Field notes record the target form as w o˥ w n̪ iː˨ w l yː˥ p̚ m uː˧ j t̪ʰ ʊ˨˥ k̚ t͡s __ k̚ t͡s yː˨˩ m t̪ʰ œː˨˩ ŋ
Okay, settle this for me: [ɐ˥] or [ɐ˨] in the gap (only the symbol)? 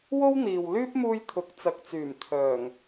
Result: ɐ˨